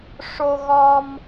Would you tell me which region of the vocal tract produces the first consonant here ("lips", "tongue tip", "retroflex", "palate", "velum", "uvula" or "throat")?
retroflex